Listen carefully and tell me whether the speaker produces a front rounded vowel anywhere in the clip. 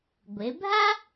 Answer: no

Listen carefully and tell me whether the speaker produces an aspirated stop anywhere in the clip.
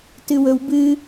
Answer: no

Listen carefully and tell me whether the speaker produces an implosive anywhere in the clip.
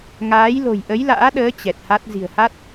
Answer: yes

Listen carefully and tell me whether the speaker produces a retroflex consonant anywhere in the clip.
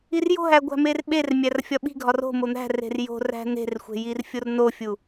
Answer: no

